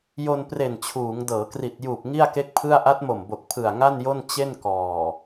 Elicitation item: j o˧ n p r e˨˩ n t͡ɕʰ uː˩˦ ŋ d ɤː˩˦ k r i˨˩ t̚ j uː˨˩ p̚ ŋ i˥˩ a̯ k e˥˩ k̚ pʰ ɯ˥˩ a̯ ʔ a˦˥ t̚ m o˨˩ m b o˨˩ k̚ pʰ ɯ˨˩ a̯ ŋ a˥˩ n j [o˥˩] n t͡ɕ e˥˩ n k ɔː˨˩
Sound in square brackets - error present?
no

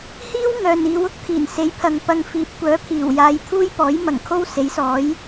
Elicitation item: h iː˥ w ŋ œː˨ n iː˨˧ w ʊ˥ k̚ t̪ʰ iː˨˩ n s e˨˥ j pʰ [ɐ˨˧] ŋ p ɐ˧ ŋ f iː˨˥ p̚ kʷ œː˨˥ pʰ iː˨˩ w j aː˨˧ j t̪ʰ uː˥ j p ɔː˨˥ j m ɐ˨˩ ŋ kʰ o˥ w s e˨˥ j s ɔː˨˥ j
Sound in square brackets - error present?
yes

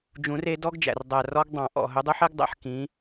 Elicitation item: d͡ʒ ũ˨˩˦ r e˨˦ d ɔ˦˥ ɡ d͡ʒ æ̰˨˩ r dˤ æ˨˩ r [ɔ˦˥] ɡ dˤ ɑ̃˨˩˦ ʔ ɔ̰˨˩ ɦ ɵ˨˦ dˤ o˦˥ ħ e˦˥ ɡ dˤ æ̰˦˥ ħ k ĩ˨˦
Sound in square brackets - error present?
no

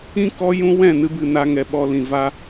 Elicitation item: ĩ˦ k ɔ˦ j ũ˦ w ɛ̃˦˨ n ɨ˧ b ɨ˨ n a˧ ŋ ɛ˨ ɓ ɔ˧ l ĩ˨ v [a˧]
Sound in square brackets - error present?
no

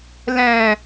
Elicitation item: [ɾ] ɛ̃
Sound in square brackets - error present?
yes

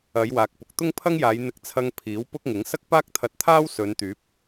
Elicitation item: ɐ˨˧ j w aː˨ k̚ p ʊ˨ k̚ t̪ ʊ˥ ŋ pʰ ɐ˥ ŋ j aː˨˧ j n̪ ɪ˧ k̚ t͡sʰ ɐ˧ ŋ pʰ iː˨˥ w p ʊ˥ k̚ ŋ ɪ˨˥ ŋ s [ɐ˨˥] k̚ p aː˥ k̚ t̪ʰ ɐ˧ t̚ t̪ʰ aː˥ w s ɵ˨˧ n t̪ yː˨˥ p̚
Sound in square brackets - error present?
yes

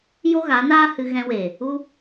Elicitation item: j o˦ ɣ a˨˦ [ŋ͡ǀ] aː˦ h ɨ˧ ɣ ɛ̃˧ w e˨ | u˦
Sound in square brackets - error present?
yes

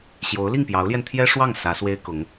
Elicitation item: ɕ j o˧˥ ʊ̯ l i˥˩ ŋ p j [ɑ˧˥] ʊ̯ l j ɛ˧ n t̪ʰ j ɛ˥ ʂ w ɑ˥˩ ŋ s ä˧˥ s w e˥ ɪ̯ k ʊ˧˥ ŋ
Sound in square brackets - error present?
no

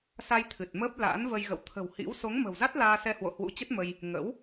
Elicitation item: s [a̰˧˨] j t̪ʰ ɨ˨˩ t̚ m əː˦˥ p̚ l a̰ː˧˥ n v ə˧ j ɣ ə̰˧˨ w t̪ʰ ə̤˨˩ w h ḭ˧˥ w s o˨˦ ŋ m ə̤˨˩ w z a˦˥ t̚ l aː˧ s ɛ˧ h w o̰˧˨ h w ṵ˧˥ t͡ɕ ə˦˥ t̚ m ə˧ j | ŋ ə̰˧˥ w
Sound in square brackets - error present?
yes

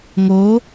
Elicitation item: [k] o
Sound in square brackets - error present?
yes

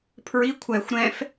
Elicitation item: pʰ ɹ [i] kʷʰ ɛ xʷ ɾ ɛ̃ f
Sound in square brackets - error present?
no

